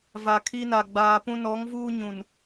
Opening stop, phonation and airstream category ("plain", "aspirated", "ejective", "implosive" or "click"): aspirated